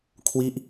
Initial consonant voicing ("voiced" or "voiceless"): voiceless